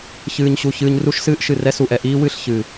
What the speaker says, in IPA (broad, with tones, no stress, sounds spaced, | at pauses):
ç ɨː˨ ɲ ɕ u˨ ç ɨː˨ ɲ r u˦ ʃ s ɨː˦ ʔ ʃ ɨ˨ r ɛ˦ s u˨ ʔ ɛ˨ ʔ iː˦ w ɨ˦˨ ɬ ç ɨː˨